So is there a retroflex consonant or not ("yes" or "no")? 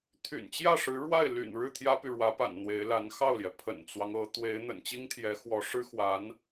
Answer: yes